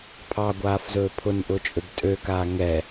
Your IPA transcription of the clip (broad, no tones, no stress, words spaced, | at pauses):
pʰɑɡʷaːfzɵː pʰʊnʔʊt͡ʃʼøb tʼøkaː ŋɛ